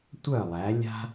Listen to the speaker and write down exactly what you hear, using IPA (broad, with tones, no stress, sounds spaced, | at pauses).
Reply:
tʷ œ˥˨ lˠ æ˨˦ lʲ a̤˦